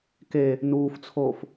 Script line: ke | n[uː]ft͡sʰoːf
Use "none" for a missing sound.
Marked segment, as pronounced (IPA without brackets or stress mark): uː